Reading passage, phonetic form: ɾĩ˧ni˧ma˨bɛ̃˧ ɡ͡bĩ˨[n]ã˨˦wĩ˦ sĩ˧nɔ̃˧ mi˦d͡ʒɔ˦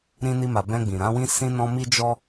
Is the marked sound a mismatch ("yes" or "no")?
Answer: yes